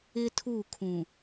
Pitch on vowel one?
high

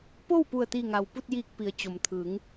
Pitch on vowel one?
falling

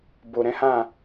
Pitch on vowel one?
low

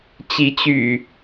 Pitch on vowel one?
rising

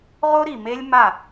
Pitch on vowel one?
high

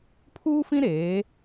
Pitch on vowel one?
high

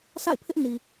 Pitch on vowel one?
falling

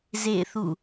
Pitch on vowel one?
falling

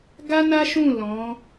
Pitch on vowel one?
high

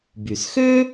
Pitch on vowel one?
low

